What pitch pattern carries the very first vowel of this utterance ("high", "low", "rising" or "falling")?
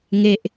high